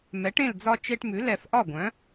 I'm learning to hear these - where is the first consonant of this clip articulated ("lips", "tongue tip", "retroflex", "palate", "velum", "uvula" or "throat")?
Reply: lips